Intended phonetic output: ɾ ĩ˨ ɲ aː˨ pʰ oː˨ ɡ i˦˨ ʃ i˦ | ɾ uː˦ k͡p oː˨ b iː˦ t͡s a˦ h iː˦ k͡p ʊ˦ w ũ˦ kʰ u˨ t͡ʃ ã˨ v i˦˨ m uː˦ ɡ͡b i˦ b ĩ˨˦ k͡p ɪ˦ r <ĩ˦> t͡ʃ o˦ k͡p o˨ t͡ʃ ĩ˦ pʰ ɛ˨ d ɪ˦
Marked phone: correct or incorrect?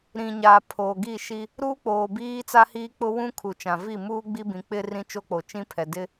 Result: correct